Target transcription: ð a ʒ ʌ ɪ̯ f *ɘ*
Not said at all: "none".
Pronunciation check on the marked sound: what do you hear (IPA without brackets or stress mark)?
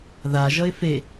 e